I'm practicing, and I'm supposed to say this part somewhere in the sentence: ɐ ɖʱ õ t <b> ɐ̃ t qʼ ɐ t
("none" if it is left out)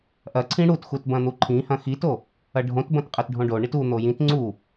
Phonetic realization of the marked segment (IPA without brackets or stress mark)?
b